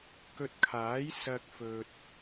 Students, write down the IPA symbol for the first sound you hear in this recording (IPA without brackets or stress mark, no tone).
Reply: k